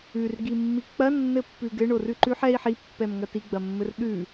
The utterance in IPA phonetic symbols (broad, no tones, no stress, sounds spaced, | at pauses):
ʉ r ɡ i mː i k͡p ɐ nː ɘ pː ʉ ɡ ɘ ɳ o r ʉ ǃ ʉ ħ ɛ i̯ ħ i pː ɛ m ŋ ɐ t i ɡ͡b ɐ mː ɘ r ɗ ʉ